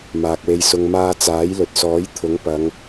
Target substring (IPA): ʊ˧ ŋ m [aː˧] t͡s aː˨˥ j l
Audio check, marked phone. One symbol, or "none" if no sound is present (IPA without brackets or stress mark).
aː˧